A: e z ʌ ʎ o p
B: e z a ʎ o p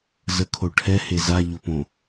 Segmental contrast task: B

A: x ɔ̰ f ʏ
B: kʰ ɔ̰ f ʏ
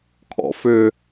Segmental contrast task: B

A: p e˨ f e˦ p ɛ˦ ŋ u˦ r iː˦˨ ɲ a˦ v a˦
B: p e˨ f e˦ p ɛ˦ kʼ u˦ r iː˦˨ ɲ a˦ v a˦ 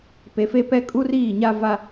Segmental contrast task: B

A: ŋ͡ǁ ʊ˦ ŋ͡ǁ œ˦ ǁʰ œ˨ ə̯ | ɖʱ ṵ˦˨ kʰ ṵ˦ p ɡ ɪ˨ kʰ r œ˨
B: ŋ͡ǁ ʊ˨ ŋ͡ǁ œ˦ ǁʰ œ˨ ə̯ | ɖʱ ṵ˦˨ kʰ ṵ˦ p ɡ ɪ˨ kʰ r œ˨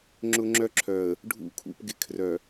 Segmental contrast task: A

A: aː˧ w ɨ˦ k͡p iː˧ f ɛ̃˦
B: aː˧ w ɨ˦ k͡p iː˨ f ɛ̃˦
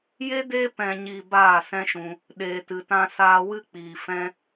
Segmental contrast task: B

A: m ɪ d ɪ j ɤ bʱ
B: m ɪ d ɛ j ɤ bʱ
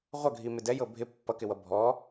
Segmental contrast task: B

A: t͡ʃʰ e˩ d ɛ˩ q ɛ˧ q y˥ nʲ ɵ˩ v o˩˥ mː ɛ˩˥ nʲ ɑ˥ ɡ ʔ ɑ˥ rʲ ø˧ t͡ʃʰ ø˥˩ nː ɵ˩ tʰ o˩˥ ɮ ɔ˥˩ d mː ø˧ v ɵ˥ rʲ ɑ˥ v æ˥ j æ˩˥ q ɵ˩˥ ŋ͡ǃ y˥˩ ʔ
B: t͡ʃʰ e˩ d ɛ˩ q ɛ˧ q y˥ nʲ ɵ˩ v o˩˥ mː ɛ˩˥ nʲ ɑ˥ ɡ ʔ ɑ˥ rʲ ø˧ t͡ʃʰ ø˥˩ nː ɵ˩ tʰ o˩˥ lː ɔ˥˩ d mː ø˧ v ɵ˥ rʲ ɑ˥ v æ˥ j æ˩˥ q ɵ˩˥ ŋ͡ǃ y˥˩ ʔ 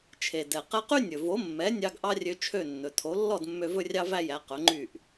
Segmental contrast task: B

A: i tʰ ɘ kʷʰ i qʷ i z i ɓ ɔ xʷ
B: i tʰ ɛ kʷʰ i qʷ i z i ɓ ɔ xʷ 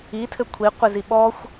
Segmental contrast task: A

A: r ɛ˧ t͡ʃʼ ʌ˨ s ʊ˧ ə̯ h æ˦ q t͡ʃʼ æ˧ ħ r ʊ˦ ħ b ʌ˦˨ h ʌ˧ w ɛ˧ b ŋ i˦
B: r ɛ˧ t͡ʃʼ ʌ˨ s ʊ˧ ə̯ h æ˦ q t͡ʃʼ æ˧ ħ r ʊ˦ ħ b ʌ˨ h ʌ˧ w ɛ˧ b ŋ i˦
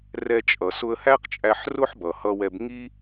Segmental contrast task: B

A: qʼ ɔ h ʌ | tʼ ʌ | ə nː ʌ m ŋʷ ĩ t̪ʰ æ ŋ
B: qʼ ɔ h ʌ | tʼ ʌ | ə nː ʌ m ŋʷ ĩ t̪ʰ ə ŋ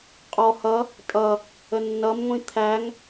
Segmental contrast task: A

